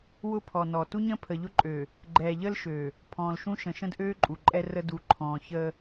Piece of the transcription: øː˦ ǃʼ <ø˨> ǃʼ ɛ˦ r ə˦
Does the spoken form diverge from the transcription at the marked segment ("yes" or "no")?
yes